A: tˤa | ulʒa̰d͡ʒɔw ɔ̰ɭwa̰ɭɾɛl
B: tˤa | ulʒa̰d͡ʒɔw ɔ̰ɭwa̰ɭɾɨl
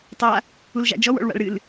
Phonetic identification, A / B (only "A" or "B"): B